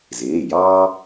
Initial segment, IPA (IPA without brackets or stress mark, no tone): z